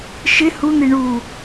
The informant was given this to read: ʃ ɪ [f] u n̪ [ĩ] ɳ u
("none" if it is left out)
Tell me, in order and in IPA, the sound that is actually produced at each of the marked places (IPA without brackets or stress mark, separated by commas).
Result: h, i